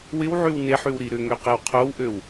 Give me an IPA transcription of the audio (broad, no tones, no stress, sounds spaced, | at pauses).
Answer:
w ɪ w ʕ y w n e ħ y w ɾ i ɾ ʏ ŋ ø q e w qʰ o w ʔ ø w